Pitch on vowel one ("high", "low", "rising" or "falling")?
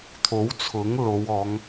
rising